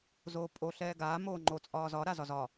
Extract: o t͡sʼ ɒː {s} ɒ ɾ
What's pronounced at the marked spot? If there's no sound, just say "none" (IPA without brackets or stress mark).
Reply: z